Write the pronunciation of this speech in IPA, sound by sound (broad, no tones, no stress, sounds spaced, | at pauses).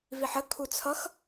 v i ħ ə kʰ u t͡sʰ ʌ x